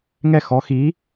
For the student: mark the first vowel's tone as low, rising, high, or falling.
falling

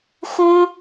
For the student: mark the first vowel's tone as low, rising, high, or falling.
high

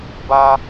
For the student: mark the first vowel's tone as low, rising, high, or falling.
high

